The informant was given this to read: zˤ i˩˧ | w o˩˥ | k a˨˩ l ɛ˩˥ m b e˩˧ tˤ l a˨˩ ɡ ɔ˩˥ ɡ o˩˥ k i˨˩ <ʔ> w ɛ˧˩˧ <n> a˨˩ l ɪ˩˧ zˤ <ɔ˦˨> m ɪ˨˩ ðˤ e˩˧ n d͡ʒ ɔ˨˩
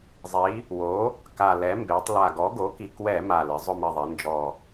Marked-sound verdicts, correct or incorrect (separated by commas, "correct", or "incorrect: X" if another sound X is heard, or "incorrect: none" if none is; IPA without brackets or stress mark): incorrect: k, incorrect: m, incorrect: ʊ˦˨